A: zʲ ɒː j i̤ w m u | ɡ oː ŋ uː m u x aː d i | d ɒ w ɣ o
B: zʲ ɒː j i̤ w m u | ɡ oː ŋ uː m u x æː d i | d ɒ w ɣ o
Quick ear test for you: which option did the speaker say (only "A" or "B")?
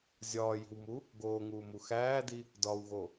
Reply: B